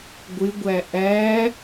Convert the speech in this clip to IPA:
ɡʷɪɡʷæ ʔæ

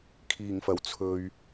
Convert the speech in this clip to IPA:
kʰiː˨˩ŋfɐ˨˩w t͡sʰɵ˨ɥ

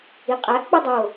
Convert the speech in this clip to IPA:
iqʼæʔk͡pɯ dˤo

